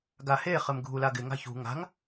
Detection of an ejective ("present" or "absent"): absent